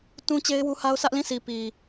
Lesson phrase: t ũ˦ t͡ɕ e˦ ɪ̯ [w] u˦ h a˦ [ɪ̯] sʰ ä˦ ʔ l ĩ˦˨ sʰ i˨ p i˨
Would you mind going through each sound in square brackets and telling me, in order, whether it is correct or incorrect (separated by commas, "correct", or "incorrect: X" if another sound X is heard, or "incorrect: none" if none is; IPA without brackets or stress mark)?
correct, incorrect: ʊ̯